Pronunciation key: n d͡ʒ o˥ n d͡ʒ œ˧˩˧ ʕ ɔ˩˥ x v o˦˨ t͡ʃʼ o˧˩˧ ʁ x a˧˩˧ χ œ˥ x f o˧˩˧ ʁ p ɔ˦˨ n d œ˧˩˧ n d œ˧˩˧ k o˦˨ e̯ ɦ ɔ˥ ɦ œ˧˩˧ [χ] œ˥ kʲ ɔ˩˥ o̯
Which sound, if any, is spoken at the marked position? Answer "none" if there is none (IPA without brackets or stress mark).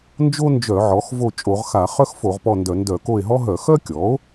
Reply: x